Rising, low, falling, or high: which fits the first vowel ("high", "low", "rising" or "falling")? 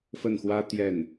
falling